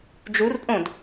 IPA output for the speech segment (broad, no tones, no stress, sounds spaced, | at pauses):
d͡ʒ u r pʼ õ d